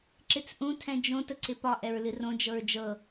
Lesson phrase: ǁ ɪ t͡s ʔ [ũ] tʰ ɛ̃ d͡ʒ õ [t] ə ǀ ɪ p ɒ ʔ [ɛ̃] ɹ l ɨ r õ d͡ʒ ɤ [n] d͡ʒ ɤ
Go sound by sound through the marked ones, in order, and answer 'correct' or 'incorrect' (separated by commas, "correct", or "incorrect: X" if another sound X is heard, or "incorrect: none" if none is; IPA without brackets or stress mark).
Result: correct, correct, incorrect: ɛ, incorrect: ɹ